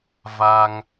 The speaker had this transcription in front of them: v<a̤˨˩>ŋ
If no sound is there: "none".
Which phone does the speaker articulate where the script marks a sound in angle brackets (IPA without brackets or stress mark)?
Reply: a˧